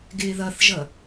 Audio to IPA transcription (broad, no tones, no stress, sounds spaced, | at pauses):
ɡ ɪː ð ʌ θ ʒ ʌ